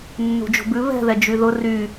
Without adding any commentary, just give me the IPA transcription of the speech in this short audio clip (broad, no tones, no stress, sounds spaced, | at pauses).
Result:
nː ṳ d͡ʒ o̤ b ʉ β ɛ̤ ð ɛ d͡ʒ y ð ʊ r y